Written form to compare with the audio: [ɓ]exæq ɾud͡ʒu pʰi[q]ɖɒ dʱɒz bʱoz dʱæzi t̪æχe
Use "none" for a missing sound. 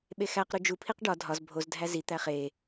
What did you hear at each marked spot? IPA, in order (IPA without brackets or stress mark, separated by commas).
ɓ, q